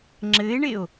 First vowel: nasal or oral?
oral